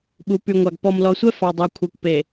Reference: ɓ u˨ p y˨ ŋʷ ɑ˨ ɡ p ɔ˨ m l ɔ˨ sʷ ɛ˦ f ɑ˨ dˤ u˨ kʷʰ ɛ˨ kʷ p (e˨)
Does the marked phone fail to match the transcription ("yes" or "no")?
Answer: no